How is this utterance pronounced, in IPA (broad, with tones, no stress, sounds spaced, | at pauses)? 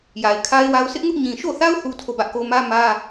j a˨ ɪ̯ kʰ a˦ ɪ̯ w a˦ ʊ̯ sʰ ɪ˦ ʔ ŋ ʊ˦ ʔ ɲ ĩ˨ ʃ o˦˨ θ a˦ ʊ̯ θ u˦ tʰ o˦˨ b ä˦ ʔ k o˦ m ä˦ m ä˦